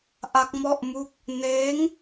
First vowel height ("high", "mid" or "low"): low